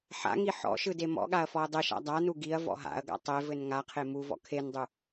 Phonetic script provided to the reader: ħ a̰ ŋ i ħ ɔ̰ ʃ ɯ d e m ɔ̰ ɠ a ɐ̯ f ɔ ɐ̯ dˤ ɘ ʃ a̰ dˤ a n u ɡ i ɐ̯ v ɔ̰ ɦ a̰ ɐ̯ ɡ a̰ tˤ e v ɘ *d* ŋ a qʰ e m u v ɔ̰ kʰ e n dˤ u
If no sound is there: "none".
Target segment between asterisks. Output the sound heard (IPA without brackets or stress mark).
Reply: n